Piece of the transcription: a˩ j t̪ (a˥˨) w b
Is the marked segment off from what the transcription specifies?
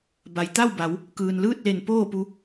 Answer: no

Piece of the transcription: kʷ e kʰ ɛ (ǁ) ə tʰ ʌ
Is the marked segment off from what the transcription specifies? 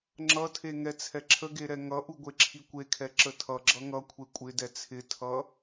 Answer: no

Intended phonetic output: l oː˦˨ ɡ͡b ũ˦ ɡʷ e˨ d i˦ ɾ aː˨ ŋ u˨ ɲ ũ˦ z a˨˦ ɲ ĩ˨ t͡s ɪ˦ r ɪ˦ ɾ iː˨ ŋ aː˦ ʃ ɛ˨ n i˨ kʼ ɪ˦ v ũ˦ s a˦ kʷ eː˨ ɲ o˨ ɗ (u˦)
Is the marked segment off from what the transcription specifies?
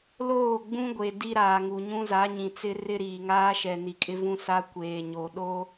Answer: yes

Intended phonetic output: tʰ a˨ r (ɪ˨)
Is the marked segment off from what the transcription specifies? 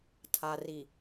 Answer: yes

